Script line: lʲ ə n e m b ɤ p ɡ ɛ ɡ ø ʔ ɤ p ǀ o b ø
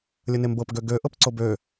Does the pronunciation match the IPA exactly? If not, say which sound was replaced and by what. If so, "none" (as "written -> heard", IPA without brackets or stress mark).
ɛ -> ø